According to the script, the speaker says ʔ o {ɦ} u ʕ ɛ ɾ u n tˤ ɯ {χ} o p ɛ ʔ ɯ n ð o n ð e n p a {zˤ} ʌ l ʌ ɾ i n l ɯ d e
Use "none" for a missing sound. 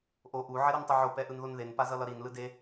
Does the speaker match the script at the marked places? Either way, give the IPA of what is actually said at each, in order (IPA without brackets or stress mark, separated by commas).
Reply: ʔ, ʕ, z